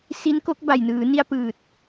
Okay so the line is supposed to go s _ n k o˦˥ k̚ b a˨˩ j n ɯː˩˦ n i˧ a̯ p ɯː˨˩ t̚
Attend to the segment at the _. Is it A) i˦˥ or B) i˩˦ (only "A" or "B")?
A